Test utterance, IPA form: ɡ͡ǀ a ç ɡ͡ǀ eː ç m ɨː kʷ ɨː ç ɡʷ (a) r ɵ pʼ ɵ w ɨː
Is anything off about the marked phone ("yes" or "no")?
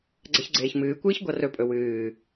no